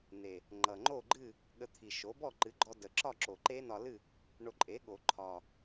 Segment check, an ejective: present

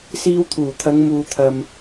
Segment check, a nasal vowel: absent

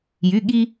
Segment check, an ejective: absent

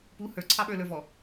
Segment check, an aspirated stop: present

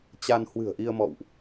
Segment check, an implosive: absent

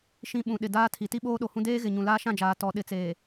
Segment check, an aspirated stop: present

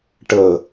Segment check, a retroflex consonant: present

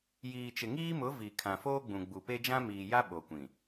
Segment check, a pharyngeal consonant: absent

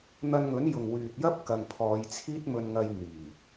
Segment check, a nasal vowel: absent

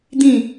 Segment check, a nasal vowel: present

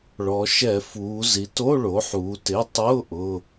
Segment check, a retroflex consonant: present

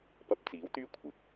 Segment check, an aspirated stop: present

